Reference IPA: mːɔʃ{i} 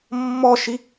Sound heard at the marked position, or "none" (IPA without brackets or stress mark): i